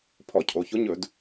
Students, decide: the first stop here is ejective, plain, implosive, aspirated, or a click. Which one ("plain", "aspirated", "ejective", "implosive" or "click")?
aspirated